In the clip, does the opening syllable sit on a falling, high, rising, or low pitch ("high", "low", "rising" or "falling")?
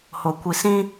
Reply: low